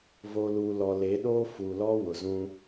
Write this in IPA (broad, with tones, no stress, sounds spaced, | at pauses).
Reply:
v o˨ l uː˨ l ɔ˨ l e˨˦ ɗ oː˦ f u˨ l ɔ˦ w ʊ˨ z ũ˦